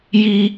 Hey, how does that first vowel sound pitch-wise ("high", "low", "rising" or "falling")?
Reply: high